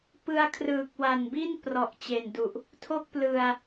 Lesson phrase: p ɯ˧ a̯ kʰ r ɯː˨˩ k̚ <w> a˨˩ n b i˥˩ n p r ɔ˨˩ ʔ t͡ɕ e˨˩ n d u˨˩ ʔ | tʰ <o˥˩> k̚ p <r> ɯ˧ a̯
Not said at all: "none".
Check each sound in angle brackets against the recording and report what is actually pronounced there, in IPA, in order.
w, o˥˩, l

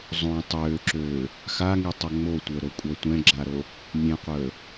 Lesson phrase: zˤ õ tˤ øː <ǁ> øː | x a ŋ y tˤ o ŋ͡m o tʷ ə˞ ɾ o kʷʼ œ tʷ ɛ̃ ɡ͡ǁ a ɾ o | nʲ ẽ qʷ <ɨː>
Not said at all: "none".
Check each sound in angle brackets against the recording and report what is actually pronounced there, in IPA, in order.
ǁ, əː

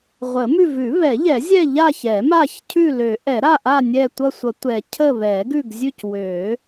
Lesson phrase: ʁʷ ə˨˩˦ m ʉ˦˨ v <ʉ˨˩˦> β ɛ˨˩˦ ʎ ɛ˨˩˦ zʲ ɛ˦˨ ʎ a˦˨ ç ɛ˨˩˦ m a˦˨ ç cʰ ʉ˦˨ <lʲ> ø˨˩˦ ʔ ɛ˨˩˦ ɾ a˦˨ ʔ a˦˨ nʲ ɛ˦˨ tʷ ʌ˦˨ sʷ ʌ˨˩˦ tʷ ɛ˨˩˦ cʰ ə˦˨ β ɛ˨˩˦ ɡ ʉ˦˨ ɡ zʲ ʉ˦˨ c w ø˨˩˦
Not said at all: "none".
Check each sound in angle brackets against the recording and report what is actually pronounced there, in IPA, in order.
ʉ˨˩˦, l

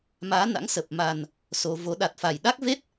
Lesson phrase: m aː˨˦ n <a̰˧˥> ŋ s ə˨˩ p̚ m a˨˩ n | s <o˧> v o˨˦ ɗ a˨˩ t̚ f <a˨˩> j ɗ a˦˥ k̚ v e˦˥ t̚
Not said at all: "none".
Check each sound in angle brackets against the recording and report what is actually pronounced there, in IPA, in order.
a̰˧˥, o˧, a˨˩

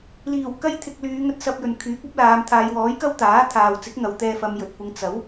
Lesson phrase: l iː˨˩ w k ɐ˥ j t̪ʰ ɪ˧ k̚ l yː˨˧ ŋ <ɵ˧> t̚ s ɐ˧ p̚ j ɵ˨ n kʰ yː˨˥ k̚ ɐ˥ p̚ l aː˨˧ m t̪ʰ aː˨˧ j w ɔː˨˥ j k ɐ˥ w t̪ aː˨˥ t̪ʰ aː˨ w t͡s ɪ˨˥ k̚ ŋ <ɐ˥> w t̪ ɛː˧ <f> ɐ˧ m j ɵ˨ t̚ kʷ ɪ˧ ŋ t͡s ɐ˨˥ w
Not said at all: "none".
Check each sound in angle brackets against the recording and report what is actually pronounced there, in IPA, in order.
ɵ˧, ɐ˨, f

